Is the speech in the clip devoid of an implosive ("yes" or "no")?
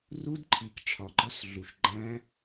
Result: yes